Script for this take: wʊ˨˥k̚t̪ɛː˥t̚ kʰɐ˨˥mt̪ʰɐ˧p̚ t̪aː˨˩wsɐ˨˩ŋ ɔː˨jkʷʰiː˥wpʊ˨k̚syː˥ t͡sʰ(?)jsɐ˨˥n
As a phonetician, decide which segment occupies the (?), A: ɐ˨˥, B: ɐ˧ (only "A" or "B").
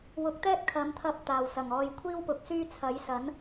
A